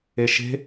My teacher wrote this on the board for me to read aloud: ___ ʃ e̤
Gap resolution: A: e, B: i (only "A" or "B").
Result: A